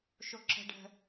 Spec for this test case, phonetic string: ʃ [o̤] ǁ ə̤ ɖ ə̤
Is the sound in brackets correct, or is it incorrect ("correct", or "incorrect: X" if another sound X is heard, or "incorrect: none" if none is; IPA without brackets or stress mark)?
incorrect: o